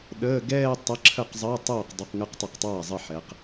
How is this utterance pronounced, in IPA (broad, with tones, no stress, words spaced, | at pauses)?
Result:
ɗəː˧˥˧ ɡɛː˥˧ tˤə˧˥˧ǁʰə˥˩qzˤəː˧˥˧tˤoː˥˩q dˤu˧˥˧qŋəː˥˧qtˤə˥˩q tˤaː˥˩zˤɘ˥˩ ħɛ˨˦q